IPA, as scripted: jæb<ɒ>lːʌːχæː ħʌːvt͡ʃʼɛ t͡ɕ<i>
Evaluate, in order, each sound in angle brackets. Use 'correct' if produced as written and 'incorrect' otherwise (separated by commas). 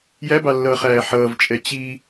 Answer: incorrect, correct